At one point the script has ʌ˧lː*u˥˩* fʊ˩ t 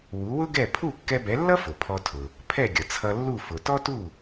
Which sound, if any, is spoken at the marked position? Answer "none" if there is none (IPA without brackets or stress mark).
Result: u˥˩